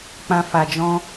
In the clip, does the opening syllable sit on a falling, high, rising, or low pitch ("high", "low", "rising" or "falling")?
low